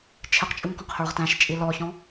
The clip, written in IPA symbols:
t͡ʃʰ ɪ q t͡ʃʼ u ŋ k ɔ̃ q h ə˞ ʁ t æ̃ ʃ t͡ʃʼ i l ɔ ç ɔ̃

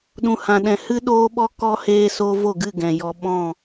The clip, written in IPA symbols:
ɗ ũ˨ h ã˨ ɗ ɛ̃˨ h ɨ˦ ɗ oː˦ ɓ ɔ˦ k ɔ˦ h eː˦ s oː˦ v o˦˨ ɡ ɨ˦˨ ɡ ɛ̃˨ j ɔ˧ ɓ ɔ̃˦˨

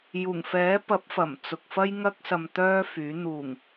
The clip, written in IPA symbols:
j uː˨˩ ŋ f ɛː˨˥ p ɐ˨˥ p̚ f ɐ˨˩ m t͡s ʊ˨ k̚ f ɐ˥ j ŋ ɐ˥ k̚ s ɐ˧ m t̪ œː˥ f yː˨˥ n̪ uː˨˩ ŋ

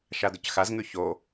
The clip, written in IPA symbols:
ʃ a d ɵ c x a z ŋ ʉ ç o

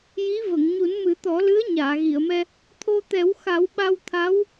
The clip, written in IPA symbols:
j i˧˥ v ə˨˩˨ ŋ ɲ u˨˩˦ n m ɨ˨˩˦ t̪ ɔ˨˩˦ l ɨ˧˥ ə̯ ɲ aː˨˩˨ ɣ i˨˩˨ ə̯ m ɛ˧ | t̪ʰ o˧ t̪ ɛ˨˩˦ w x a˨˩˦ w ɓ a˧ w t̪ʰ a˧˥ w

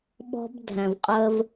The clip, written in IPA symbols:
ɓ ɔ̤˦ b dʱ æ̃˨ v qʼ ɜ˦ v

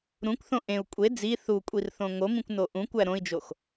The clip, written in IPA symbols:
ɾ ũ kʷ θ õ ʔ ẽ u̯ kʷʼ e d͡z i θ u kʷʼ i r θ õ ŋ o m ĩ kʷ n o ʔ ũ kʷ æ ɾ õ i̯ d͡ʒ o x

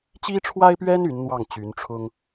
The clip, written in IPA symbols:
t͡ɕ i˥ ʈ͡ʂʰ w a˥ ɪ̯ p ɥ ɛ˥ n y˧˥ n n̪ w ɑ˥˩ ŋ t͡ɕ y˧˥ n ʈ͡ʂʰ ʊ˥ ŋ

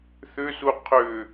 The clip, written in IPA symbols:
θ ʏ s u qʰ ʏ

